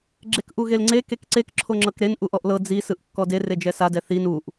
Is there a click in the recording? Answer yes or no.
yes